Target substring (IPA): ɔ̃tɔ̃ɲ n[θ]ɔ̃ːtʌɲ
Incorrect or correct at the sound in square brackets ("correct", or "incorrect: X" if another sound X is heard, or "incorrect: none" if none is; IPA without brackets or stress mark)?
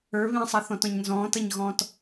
incorrect: z